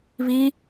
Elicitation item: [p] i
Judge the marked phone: incorrect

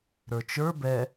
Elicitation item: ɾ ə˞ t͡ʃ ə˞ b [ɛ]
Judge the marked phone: correct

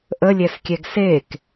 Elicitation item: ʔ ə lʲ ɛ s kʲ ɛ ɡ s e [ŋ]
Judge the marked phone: incorrect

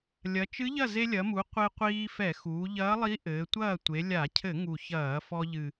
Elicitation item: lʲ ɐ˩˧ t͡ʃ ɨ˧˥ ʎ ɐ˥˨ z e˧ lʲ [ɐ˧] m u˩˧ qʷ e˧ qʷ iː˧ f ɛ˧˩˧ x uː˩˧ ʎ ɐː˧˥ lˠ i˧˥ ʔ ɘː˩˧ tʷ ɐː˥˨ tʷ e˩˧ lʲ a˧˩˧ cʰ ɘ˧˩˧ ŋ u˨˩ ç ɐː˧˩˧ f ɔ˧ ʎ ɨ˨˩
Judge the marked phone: incorrect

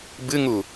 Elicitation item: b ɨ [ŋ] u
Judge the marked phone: correct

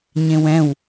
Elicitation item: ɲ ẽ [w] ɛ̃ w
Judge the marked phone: correct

